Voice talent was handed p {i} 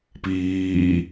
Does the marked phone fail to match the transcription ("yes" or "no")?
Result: yes